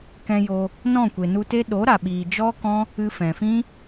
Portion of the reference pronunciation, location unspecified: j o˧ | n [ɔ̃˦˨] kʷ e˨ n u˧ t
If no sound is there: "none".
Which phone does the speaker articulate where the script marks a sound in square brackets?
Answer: ɔ̃˦˨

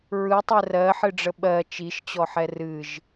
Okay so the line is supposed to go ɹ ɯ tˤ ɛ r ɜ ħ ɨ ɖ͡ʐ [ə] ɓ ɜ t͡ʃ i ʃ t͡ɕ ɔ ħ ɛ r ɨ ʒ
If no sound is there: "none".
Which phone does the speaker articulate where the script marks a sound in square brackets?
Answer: ə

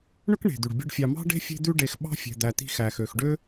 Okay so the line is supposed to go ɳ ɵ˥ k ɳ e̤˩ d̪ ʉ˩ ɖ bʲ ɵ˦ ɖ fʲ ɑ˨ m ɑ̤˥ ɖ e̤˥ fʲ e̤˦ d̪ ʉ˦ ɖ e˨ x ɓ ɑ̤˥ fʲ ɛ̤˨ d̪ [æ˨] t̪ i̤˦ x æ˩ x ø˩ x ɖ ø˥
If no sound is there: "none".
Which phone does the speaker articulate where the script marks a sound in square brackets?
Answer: æ˨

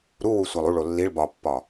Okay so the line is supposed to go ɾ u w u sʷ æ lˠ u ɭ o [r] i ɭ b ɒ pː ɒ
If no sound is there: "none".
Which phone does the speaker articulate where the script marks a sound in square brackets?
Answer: lː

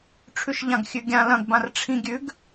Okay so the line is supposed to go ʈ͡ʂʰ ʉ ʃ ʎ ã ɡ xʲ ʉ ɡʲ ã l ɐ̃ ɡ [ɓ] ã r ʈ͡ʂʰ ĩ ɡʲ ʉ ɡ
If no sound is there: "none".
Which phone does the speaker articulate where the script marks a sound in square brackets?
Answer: b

